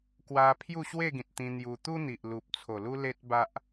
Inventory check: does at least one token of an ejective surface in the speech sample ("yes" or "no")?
no